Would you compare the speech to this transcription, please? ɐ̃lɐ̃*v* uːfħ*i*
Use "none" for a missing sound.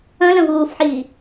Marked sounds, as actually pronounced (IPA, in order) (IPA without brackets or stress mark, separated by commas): v, iː